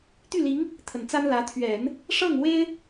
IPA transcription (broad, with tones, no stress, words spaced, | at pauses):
t̪y˥˩li˧˥ŋ | t̪ʰə˨˩nt͡sa˥nlä˧˥ t̪ʰɥɛ˨˩˦n | ʂɤ˥˩ŋ we˥ɪ̯